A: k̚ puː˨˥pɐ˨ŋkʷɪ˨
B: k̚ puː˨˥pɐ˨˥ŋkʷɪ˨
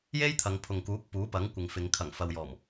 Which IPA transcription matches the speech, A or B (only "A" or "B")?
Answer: B